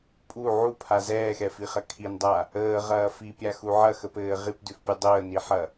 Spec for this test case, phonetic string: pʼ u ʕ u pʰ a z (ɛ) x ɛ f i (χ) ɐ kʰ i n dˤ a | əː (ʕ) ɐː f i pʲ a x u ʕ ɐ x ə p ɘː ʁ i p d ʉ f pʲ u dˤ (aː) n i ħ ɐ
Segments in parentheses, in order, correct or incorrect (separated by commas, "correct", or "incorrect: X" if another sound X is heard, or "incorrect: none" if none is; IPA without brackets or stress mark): incorrect: ɛː, correct, incorrect: ʁ, incorrect: əː